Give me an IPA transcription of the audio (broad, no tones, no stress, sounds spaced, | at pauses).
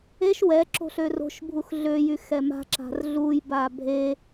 e ʃ w ɛ ǁ o̤ ɬ ø r o̤ ʃ bʱ u x ɮ ø j y x ɛ m a̤ ǁ a̤ r ɮ u j b a bʱ e